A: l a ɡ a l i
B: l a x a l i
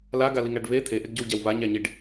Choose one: A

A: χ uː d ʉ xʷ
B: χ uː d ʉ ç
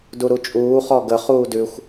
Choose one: A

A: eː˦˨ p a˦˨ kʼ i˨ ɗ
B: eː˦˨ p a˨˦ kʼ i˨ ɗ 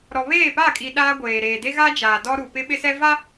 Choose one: A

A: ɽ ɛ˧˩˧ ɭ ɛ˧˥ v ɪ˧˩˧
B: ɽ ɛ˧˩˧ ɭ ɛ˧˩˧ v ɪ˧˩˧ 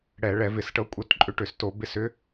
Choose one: B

